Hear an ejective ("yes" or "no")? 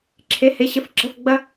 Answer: no